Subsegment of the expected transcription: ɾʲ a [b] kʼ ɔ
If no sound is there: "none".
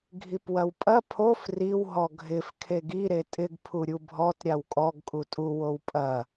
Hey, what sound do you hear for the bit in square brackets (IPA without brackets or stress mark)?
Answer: w